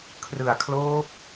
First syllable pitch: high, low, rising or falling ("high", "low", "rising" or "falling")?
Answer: low